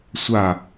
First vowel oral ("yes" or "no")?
yes